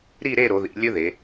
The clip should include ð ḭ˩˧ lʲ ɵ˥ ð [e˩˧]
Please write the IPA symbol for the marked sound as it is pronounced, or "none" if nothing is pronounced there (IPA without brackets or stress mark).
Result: e˩˧